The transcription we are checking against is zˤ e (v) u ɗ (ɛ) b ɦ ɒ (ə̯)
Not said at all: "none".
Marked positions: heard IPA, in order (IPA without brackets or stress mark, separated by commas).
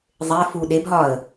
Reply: f, e, ə̯